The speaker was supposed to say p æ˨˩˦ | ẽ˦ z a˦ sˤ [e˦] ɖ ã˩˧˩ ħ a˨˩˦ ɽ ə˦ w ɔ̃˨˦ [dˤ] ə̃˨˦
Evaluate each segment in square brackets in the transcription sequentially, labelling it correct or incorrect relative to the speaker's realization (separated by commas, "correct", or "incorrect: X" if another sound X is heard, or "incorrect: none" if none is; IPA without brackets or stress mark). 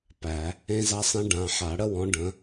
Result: incorrect: ẽ˦, incorrect: ɖ